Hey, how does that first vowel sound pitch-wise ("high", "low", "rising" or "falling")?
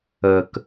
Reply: low